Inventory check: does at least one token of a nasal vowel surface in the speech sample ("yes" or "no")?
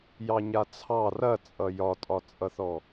no